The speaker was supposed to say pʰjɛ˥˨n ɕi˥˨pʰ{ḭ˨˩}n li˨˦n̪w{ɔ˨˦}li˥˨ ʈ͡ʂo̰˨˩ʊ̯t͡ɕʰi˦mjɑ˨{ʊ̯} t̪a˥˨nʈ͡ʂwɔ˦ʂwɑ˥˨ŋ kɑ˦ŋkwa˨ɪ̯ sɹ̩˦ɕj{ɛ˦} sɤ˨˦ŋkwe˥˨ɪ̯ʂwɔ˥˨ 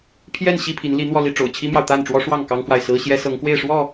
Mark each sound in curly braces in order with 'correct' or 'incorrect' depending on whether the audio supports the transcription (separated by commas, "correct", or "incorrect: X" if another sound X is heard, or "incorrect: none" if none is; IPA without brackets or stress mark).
incorrect: i˨˦, incorrect: ɔ˧, correct, correct